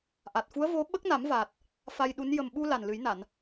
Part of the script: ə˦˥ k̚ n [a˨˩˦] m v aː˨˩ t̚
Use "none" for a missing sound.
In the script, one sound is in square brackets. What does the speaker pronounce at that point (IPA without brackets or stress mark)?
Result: a˨˩˦